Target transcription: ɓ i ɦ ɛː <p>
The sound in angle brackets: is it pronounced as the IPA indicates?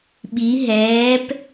yes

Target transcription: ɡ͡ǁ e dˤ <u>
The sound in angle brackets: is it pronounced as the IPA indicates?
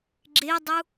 yes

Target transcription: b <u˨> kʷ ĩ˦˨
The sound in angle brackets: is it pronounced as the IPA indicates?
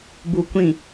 yes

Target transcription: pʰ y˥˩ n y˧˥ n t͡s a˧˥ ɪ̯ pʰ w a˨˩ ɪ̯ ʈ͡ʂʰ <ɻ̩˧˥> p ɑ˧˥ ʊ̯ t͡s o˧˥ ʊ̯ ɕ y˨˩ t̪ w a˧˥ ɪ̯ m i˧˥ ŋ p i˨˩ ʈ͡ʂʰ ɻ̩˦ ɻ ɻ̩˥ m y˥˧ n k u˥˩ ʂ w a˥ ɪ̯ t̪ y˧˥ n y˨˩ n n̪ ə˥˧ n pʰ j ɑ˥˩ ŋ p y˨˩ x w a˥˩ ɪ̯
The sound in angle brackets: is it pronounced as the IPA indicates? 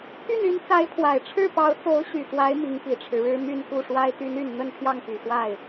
no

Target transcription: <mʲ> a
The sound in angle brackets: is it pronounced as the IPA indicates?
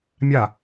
yes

